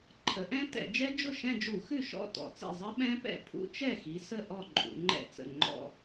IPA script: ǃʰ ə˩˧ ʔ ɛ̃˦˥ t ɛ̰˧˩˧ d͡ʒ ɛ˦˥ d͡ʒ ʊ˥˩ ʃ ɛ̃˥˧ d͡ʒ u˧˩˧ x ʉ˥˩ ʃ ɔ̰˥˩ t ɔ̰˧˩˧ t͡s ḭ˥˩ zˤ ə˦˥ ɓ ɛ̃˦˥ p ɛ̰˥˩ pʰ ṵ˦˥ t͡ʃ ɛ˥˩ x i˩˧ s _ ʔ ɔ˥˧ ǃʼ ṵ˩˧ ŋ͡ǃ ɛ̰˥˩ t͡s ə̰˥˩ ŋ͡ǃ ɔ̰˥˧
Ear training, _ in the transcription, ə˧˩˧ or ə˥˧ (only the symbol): ə˥˧